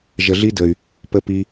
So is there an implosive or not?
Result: no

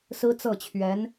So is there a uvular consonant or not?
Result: no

